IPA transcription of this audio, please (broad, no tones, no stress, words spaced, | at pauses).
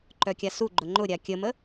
ǃœkʲasuɡ͡ǃʊ ŋ͡ǃʊɾʲa kʲəmə